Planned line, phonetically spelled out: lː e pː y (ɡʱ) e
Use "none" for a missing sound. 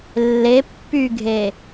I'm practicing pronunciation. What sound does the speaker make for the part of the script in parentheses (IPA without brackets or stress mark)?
ɡʱ